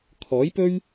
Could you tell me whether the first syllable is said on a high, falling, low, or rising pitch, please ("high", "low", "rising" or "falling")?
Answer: rising